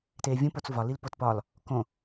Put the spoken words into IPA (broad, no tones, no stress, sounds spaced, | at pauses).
t eː vʲ ũ p o t͡s v ɒ l i l p o t p ɒ l | k õ